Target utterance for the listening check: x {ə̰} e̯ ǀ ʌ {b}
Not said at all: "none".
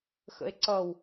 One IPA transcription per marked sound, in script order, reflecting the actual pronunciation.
ə̰, w

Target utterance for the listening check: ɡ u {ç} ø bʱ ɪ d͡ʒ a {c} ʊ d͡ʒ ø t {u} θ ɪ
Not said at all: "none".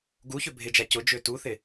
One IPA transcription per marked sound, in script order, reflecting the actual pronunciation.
ç, c, u

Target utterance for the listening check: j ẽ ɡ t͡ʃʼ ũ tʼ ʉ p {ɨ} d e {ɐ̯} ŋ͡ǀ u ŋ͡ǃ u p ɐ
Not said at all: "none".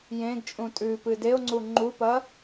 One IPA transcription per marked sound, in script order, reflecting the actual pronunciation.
ɨ, o̯

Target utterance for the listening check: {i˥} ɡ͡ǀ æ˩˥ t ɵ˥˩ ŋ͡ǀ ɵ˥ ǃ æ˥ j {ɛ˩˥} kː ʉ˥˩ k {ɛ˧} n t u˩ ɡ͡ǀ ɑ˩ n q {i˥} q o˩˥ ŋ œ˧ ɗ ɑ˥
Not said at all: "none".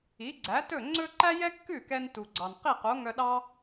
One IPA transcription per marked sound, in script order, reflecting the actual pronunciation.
i˩˥, ɛ˥, ɛ˧, i˥˩

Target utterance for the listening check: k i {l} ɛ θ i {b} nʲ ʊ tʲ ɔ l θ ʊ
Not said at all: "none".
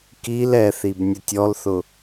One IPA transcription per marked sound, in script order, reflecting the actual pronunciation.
l, b

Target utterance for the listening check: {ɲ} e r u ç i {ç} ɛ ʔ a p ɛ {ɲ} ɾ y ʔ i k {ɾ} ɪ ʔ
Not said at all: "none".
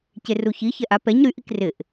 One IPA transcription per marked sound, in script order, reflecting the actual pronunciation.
c, ç, ɲ, r

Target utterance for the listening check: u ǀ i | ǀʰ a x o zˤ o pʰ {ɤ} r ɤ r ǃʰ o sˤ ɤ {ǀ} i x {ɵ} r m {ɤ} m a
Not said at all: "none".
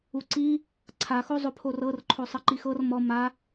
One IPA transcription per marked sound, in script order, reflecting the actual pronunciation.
o, ǃ, ɤ, ɔ

